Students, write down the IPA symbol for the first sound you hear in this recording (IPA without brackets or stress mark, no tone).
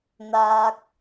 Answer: n̪